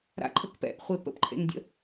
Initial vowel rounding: unrounded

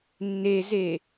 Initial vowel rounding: unrounded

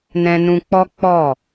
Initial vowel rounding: unrounded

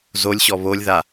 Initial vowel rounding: rounded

